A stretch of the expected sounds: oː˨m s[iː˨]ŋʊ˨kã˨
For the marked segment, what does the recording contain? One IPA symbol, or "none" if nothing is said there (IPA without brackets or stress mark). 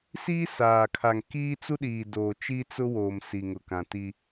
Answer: i˨